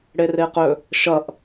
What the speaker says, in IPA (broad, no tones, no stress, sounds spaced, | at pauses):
ɽ e r e q ɵ | ʃ ʌ ʔ